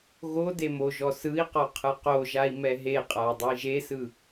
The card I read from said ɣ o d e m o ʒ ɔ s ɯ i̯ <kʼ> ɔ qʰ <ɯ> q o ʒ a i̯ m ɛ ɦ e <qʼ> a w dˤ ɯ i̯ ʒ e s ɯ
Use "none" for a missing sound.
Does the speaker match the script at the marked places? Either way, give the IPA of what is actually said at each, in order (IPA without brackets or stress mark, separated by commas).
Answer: q, ɯ, qʼ